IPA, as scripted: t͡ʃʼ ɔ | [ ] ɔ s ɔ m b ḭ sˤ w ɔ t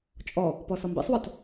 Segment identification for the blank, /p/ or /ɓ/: p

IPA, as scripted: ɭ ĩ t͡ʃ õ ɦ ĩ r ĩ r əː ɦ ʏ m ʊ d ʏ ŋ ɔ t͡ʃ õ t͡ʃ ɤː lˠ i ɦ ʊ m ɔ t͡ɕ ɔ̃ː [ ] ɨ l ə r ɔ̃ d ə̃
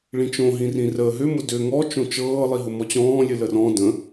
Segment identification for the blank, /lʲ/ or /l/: lʲ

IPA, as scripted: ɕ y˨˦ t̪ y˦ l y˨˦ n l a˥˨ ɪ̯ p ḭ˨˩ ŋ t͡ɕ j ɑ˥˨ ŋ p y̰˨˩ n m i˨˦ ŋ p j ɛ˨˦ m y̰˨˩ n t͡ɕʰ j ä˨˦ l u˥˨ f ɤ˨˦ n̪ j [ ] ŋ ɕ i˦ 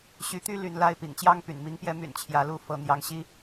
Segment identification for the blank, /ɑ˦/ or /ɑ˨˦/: ɑ˨˦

